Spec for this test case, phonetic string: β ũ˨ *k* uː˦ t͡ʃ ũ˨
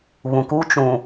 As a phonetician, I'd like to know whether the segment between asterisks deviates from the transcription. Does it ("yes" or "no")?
no